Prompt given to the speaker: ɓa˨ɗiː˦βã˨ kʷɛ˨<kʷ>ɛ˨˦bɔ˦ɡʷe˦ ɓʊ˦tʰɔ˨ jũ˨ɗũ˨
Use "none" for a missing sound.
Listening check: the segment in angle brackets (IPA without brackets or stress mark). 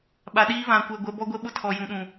ɡʷ